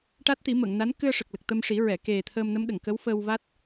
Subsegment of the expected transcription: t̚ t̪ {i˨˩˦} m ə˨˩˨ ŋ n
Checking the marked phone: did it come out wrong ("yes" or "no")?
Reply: no